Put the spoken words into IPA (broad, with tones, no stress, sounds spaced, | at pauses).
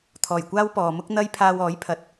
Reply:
t̪ʰ ɔː˨˩ j kʷ aː˥ w p ɔː˨ m ʊ˥ k̚ n̪ ɐ˥ j pʰ aː˧ w ɔː˨˥ j pʰ ɐ˨ t̚